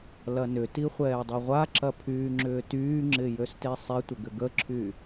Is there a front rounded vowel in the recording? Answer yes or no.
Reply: yes